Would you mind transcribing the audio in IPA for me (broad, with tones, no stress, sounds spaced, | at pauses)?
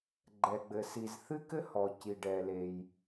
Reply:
ɡ͡ǃ ɛ˩ ɡ͡b ɘ˩ s i˩ z θ ɨ˥ k ɘ˥ h ɔ˩ c i˩ ɖ ɛ˩ l e˩ j